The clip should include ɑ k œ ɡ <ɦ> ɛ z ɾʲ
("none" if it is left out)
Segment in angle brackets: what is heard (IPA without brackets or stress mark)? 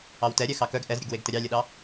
ʔ